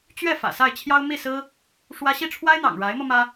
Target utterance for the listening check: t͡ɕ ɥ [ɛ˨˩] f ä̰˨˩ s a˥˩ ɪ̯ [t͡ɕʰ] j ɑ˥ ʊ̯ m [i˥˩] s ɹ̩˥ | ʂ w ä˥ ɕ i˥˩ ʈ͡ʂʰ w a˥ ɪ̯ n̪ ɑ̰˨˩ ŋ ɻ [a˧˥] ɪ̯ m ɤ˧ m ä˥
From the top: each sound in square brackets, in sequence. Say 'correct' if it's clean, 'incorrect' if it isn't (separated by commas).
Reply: incorrect, correct, correct, correct